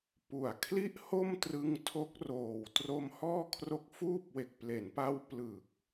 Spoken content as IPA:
p u˨˩ a̯ kʰ l i˥˩ ʔ h o˥˩ m t r ɯ˦˥ ŋ tʰ o˦˥ k̚ r oː˨˩ w t r o˦˥ m h ɔː˥˩ kʰ r o˦˥ k̚ f uː˥˩ p̚ w e˨˩ k̚ p l e˩˦ n p a˧ w p l ɯ˨˩ k̚

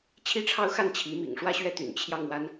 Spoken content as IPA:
t͡ɕʰ i˥˧ ʈ͡ʂʰ ɑ˥˧ ʊ̯ x a˥˩ n t͡ɕʰ i˧˥ m ḭ˨˩ ŋ ʂ w ä˥˧ ɕ ɥ ɛ˥˩ t̪ y̰˨˩ n t͡ɕʰ j ɑ˥˩ ŋ w a˥ n

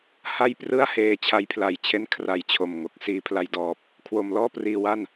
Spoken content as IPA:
h a˥˩ j p r ɯ˥˩ a̯ h eː˧ t͡ɕʰ a˧ j pʰ l a˨˩ j t͡ɕʰ e˦˥ n kʰ r a˧ j t͡ɕʰ o˨˩ m ŋ o˨˩ k̚ s iː˧ pʰ l a˧ j d ɔː˨˩ p̚ | kʰ w o˧ m l ɔː˥˩ p r iː˧ w a˥˩ n

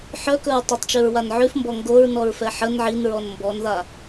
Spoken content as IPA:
ħ œ k ɵ ɹ tˤ œ tˤ t͡ʃ ʉ ɹ w a n ʕ ʉ f m b ɔ ŋ ɡ o ɹ n ɔ ɹ f ɛ ħ ə n ʕ i n ɹ ɔ n m b ɔ n ð a

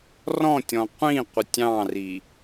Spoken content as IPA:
r ɔ̃ tʲ ɔ̃ qʷ ĩ qʷ ə tʲ ɑ̃ r i

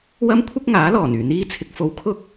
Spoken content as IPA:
w ɐ˥ m kʷʰ ɪ˥ k̚ ŋ aː˨˥ l ɔː˨˩ n yː˨˩ n̪ iː˧ t͡sʰ ɪ˨ k̚ f o˨ w kʰ ʊ˥ k̚

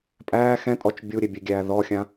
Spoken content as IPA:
pʼ æː x ɛ̃ tʼ ɔ t͡ʃ bʲ u ɾʲ e bʲ e ɡʲ æː ð ɔ xʲ ã

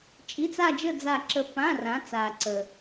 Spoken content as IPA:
t͡ʃʼ i˧˥˧ t͡s a˥˧ d͡ʒ ə˥˧ d͡z a˥˧ ǁ ə˥˧ p ã˧˥˧ r ã˨˦ t͡s a˨ ǀ ə˨

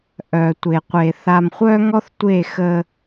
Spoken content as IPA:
ʔ œ˨ tʷ e˨ qʷ e˨ θ a˨ m χʷ œ˦ ŋ ɔ˦ θ tʷ e˦˨ x ə˦

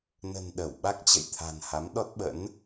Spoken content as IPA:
n ə̤˨˩ n ɗ ə˧˩ w ɓ a˦˥ k̚ t͡ɕ ə̰˧˨ j t̪ʰ a̤˨˩ n h a˨˦ m ɗ ɔ˦˥ t̚ ɓ ə̰˧˥ n

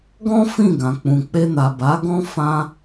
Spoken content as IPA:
ɡ ɔ̃˦ f ĩ˦˨ ɡ ã˨ k͡p ũ˨ k͡p e˧ n a˨ b a˨˦ ɡ ɔ̃˦ f ã˧

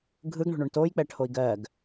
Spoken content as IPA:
ɡʱ ɯ ɡ ɳ o̤ ɳ o ɳ t o j k͡p ɛ ʈʰ o i̯ ɡ ɜ ɡ

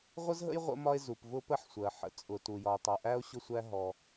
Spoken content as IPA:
ʁʷ ə˥ z ɦ ə̰˥ j ʁʷ ə̰˥ m ɒ˥ e̯ z u˩ p v ʊ˥ p ə˥ ħ sʷ ɜ˩ ħ ə̰˩ t͡sʼ ʊ˩ t u˩ j ɒ˩ o̯ tˤ ʌ˩ ʔ æ˥ o̯ ɕ ʊ˥ sʷ æ˥ ɦ ɔ˩

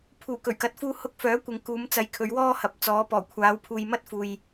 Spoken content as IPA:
pʰ uː˨˩ k ɵ˨˩ ɥ k ɐ˨ t̚ f uː˧ h ʊ˧ k̚ f œː˨˥ kʷ ɪ˨ ŋ k uː˨˧ m t͡s ɐ˨˧ j kʰ ɵ˨˧ ɥ w ɔː˥ h ɐ˨˥ p̚ t͡s ɔː˨˧ p ɔː˨˩ kʷʰ aː˨˧ w pʰ uː˨ j m ɐ˥ t̚ f uː˨ j

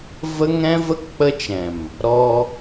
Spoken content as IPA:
v ə˦ ŋ ɛ̃˦ v ə˦ k k͡p ə˦ t͡ʃ ɛ̃˨ m | ɾ ɔ˧

